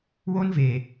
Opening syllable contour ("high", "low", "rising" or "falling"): high